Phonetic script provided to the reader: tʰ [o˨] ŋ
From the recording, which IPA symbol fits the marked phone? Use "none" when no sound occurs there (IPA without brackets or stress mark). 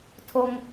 o˦